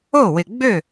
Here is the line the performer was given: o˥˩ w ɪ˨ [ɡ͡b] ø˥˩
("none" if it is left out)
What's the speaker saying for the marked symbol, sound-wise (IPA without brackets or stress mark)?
ɡ͡b